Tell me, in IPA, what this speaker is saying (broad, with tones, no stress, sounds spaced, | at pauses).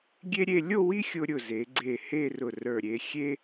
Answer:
ɡʲ e˥ ɾʲ e˥˧ lʲ o˥˧ w i˥ xʲ ʊ˧ ɾʲ ʊ˧˩ z e˩˧ ɡ͡ǀ e˧˩ h e˥˧ r ʊ˧˩ r ə˞˧˩ ɾʲ e˧ xʲ e˥